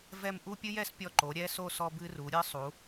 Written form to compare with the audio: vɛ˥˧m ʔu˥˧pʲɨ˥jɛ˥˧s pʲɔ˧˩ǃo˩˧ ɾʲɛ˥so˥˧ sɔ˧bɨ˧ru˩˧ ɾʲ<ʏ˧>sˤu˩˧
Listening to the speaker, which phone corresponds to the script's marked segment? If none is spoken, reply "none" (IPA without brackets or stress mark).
ɨ˧